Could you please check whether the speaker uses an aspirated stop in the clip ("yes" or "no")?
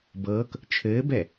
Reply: yes